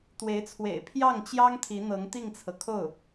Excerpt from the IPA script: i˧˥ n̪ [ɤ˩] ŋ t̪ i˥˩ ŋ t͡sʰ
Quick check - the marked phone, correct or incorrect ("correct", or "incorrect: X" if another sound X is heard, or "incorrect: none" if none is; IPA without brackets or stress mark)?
incorrect: ɤ˧˥